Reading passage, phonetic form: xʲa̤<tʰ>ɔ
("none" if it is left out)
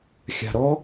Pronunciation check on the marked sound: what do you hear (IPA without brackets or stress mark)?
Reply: ɾ